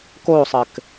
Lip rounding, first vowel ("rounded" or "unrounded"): rounded